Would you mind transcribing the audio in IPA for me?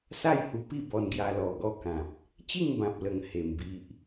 s a˥˧ j h u˧ p i˥˧ b ɔ˧ n ɡ j a˧ l ɔ˨˩ ɡ ɔ˦ k ã˨ p̚ | t͡ɕ i˥˧ ŋ b ã˨ p̚ l ə˨˩ ŋ h e˧ m b i˦ ʔ

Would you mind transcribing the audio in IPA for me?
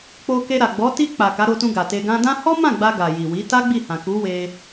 k͡p o˧ k e˧ ɾ a˨ ɡ͡b ɔ˨˦ t i˧ k͡p a˨ k a˨˦ ɾ o˧ t ũ˧ ɡ a˨ t e˧ ɡ ã˧ d ã˦ h ɔ˦ m ã˦˨ ɡ͡b a˧ ɡ a˨ j i˨ w i˨˦ t a˦ ɡ͡b i˦˨ h ã˨ k u˨˦ w e˧

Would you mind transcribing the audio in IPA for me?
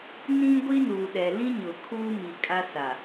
n ĩ˦ ɡʷ i˦ n uː˨ ɗ ɛ˨ l ĩ˦ ɲ ʊ˨ kʰ uː˦ m i˨ kʼ a˦ s a˨

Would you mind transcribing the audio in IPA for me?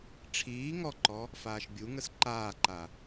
ʈ͡ʂʰ iː ŋ ɔ ǃ ɔ | f aː ʃ bʲ u ŋ ə s ǃ aː ǃ a

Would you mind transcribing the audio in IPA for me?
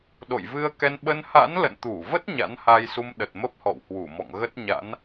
ɗ o̰˧˨ j v ɨ˧ ə̯ k ɛ˧ n ɓ ə˧ n h a̰˧˥ n l ə̰˧˨ n t̪ u˧˩ v ə˦˥ t̚ ɲ a̰˧˥ n h a˧ j s u˧ m ɗ ə˨˩ t̚ m ə˦˥ p̚ h ɔ̰˧˨ w h w u˧˩ m ɔ̰˧˨ ŋ ɣ ə˦˥ t̚ ɲ a̰˧˥ n

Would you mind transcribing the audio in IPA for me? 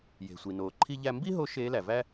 j e̤˩ sʷ i˩ n oː˩ ǃʰ i˧ ʎ æ˧ m b i˥ ɦ o˧˥ ʃ eː˧˥ l æ˩ v æ˥

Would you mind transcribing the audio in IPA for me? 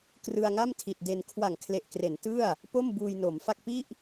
k r ɯ˧ a̯ ŋ a˥˩ m tʰ i˨˩ t̚ d e˧ n kʰ w a˨˩ ŋ kʰ l e˨˩ ʔ k r e˩˦ n t ɯ˥˩ a̯ | p o˥˩ m b uː˧ j n o˩˦ m f a˥˩ k̚ p i˥˩ ʔ

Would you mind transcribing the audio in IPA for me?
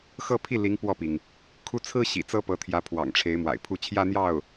x ɤ˥˧ pʰ i˥˩ l i˧˥ ŋ p w ɔ˥˩ p i˩ ŋ | kʰ u˥˩ t͡sʰ ɹ̩˥ ɕ ḭ˨˩ t͡s ɤ˥ p ɤ˧˥ t̪ʰ j ä˧˥ pʰ w ɑ̰˨˩ ŋ ʈ͡ʂʰ e˧˥ ɪ̯ m w a̰˨˩ ɪ̯ pʰ u˥˩ t͡ɕʰ j ä˥ n̪ j ɑ˥˩ ʊ̯

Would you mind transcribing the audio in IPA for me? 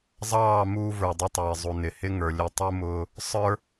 zˤ ɑː˦˨ m uː˦ v ə˞˨ dˤ ʊ˦ tˤ ɛː˨ zˤ u˨ n ɪ˨ h ɪ˦ ŋ ə˞˨ lʲ ʊ˦ tˤ u˦ m ʊː˦ | sˤ ə˞˦

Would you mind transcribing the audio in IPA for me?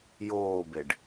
j oː b e ɖ

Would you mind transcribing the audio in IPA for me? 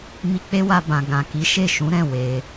m i˧ k͡p e˦ w a˧ b ã˨ ɡ ã˨ k i˨˦ ʃ e˦˨ ʃ ũ˨˦ ɾ ɛ̃˦˨ w e˧

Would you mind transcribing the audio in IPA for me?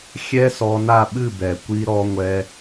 xʲ ɛ˥ s ɔ˧ n a˥˩ ɓ ɨ˥˩ b ɛ˩ kʷ i˧ ɾ ɔ˧ ŋʷ ɛ˧

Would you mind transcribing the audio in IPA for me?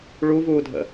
ɭ u v uː dʱ ə̰

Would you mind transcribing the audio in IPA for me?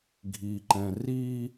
ɡʱ i ǃ ɛ̃ r i

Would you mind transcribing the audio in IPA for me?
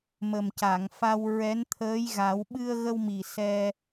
m ə˨˩ m c a˨˩˨ ŋ f a˧ w ɹ ɛ˧˥ n t̪ʰ əː˧˥ j ɣ a˨˩˦ w ɓ ɨ˧ ə̯ ɣ ə˧ w m i˨˩ s ɛ˧

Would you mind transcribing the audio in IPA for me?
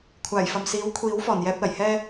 kʷʰ aː˨˩ j f ɐ˨ m s iː˨˥ w kʷʰ iː˨˥ w f ɔː˨˩ n j ɛː˧ p̚ l ɐ˨˩ j h ɛː˧

